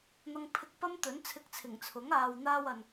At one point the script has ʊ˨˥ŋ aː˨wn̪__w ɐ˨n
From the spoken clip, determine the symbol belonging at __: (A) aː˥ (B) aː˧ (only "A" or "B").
B